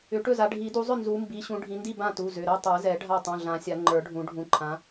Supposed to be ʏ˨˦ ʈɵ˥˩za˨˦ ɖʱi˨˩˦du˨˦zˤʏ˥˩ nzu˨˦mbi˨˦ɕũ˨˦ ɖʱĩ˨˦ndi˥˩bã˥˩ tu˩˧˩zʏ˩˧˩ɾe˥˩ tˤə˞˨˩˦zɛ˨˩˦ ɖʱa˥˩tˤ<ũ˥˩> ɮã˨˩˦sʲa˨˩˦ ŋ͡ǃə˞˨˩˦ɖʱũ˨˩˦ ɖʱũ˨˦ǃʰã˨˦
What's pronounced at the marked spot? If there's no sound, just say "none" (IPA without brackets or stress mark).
ũ˩˧˩